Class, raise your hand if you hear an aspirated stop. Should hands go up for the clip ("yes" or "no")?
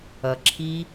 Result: yes